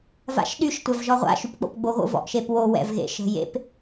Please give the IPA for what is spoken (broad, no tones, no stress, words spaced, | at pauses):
va̰ʃɗyʃ tʷævʒɔʁʷa̰ ʃypk͡po̰pɡ͡boɣo̰ vɔ̰ʔʃepwo wɛ̰vɣḛʃə̤jḛp